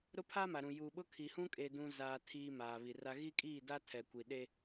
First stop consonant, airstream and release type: aspirated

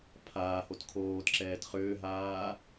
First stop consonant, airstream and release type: aspirated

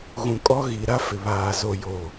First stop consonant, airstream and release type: ejective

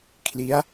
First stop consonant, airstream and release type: aspirated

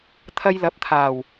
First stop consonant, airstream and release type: aspirated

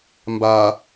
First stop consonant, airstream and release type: plain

